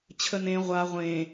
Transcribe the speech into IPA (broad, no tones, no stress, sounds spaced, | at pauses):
t͡ɕʰ ə n ẽ ʁʷ a ʁʷ ẽ